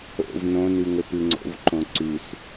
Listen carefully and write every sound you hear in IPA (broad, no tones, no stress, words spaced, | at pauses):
o̰v nõnʉŋɵ pɨŋ͡ǀo̰vǃõ ǀʉs